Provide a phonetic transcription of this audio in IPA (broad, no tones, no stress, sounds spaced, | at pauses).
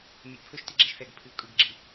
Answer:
mʲ ɨ ʔ pʰ ɵ ʃ t i ɡ͡ǁ ɛ ʃ θ ɛ ɡ pʰ ɨ u̯ kʼ ɯ ɡ ɡ͡ǁ i